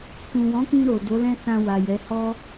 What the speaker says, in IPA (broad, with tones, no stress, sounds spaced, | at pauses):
k ũ˨ w ɔ̃˨˦ k ĩ˧ ɾ o˨ d o˨˦ l ɛ̃˦ s ã˧ w a˨ j ɛ˨˦ h ɔ˦